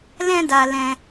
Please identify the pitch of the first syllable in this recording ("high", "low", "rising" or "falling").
high